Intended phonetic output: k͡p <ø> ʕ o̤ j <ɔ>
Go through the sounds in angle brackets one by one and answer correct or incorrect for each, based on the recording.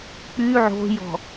incorrect: y, incorrect: ɔ̤

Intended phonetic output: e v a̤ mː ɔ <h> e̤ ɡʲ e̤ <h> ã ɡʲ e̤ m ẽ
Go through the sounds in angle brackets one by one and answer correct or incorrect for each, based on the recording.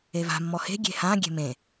correct, correct

